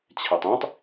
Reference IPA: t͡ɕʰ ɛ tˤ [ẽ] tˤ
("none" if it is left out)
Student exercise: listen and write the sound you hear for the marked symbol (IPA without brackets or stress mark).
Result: ĩ